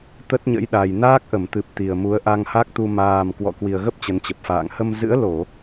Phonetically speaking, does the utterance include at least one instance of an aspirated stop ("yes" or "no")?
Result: no